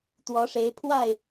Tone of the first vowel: rising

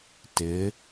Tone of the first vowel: rising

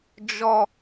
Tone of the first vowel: low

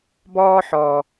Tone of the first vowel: high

